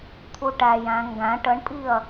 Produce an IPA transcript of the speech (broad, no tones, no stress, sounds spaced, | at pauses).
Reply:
t̪ʰ u ʈ æ j æ̃ ŋ ɡ æ̃ ʈ ə ɳ pʼ i ɐ̯